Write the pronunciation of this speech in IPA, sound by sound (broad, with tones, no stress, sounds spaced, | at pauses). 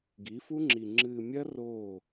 ɡ i˨˦ f u˦ ŋ͡ǁ i˨ ŋ͡ǁ ɨː˨ mʲ ɐ˦ r oː˦˨